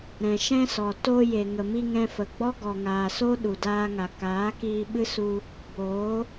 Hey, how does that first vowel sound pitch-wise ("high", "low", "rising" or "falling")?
low